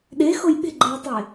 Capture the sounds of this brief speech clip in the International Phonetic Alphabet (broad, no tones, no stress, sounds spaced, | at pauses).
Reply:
ɗ e x o j ɓ e̤ ɡ͡ǃ ɛ j tˤ e